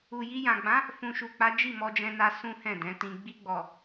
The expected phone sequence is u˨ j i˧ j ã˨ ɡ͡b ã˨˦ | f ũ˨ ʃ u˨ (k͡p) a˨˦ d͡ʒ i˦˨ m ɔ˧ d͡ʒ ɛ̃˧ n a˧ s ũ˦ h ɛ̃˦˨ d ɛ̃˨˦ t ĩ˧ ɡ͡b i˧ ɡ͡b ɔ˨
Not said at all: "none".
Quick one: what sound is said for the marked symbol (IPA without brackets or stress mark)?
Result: k͡p